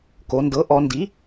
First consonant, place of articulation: velar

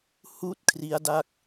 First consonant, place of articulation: glottal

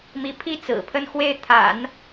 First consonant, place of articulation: labial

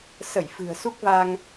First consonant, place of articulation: alveolar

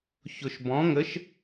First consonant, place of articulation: palatal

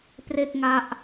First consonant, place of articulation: labial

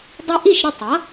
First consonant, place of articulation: alveolar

